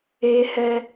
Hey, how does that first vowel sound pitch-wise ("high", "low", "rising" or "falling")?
high